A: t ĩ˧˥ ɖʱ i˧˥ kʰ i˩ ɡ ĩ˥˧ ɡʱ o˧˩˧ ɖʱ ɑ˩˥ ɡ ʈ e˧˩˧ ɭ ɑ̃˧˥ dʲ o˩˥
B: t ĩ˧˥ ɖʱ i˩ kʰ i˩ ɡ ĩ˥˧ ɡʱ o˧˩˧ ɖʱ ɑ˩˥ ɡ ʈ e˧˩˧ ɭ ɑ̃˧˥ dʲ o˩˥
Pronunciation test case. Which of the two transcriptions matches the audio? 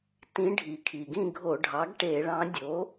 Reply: B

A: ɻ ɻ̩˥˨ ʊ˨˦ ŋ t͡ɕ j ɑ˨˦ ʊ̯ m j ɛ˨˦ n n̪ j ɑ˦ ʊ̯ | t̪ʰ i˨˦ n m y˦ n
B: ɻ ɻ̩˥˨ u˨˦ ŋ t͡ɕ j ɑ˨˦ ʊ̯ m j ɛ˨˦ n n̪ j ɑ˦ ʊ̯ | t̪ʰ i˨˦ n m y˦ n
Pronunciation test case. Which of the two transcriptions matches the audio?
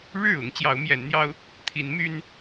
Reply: A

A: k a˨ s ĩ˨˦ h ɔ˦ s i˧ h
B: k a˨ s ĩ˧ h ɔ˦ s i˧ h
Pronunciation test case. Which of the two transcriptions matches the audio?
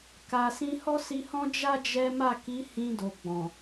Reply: B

